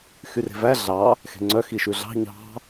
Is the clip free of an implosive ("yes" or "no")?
yes